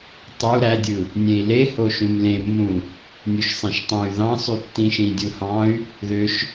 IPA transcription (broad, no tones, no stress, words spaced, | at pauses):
tˤu ɾædʲɯ | nʲẽi̯le hoʃũmlẽmːũ | nʲuʃsˤẽʃtˤẽy̯ ðɑ̃sˤy tːĩʃĩdʲuhɑ̃y̯ | ðøʃ